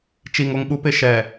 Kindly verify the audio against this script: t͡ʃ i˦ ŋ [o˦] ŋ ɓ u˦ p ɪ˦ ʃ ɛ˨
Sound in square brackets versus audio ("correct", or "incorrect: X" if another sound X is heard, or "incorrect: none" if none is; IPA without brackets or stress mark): correct